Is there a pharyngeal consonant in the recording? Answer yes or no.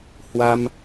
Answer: no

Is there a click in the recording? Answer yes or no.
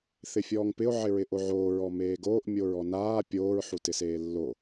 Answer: no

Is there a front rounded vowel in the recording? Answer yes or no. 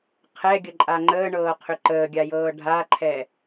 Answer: yes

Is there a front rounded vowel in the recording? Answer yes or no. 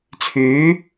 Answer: yes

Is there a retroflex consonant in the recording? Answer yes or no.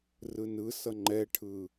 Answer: yes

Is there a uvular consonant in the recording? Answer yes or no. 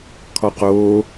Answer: yes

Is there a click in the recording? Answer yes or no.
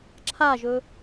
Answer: yes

